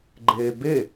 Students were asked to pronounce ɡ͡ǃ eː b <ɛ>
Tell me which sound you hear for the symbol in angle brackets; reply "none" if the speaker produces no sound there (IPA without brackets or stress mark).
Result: e